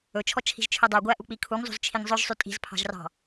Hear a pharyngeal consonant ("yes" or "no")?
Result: no